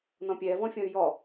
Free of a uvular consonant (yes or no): yes